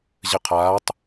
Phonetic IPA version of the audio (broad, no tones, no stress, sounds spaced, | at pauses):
ʑ ɘ qʰ aː tˤ